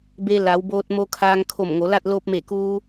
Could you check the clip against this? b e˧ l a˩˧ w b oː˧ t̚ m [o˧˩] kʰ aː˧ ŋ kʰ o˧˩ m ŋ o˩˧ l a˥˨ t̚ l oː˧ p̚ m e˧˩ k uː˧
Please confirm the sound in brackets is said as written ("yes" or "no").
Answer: no